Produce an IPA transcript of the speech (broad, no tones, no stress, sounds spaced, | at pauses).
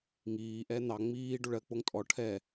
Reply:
ŋ iː ʔ ɛː n̪ ɑ ŋ͡m iː ɖ o ɭ ɜ k͡p o ŋ tʼ ɔ ʈʰ ɛ